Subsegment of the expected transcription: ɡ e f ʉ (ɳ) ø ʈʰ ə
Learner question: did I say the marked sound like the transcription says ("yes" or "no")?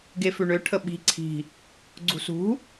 yes